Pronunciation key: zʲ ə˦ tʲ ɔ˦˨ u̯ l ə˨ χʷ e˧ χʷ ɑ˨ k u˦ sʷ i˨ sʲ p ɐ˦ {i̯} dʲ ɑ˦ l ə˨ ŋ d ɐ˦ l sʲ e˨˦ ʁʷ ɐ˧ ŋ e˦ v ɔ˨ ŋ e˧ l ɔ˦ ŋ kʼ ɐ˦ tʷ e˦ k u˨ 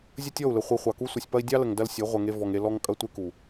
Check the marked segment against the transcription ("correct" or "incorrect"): correct